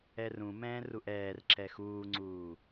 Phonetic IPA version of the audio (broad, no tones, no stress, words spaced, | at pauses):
ɛrũmɛ̃ː ruʔɛːr ǁɛxuːŋ͡ǀuː